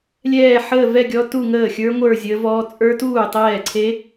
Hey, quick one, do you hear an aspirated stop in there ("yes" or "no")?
yes